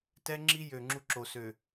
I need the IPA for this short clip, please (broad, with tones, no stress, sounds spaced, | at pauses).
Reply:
t ɛ˦ ŋ͡ǁ i˦ j ø˨ ŋ͡ǁ u˦ ǁ o˨ s ø˨